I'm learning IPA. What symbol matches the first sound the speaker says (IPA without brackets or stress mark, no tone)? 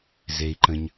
z